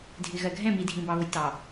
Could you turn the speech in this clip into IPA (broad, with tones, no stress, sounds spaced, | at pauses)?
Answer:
dʱ ɪ˨ ɣ ɜ˨ ɡʱ ɛ̃˦˨ m i˨ dʱ ĩ˨ b ɑ˨ β ʊ˨ j t ɑ˨